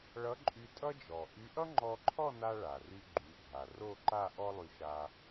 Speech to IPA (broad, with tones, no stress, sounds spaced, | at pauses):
ɭ ʌ˧˥ ǃʼ y˧ tʼ ʌ˥ d͡ʒ ɔ˩ ʔ y˧˥ ʔ ʌ˥ ŋ͡ǃ ɔ˧ ǃʰ ɔ˥˧ n a˧ ɭ a˩ r y˧ ɡ͡ǃ y˩˧ ɡʱ a˩ r o˥˧ ǃ a˥˧ ʔ ɔ˥ lˠ y˧ ʃ a˧